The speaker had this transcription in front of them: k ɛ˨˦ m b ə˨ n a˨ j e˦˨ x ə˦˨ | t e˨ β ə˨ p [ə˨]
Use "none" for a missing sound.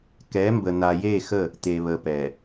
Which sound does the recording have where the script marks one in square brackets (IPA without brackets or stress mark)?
ɛ˨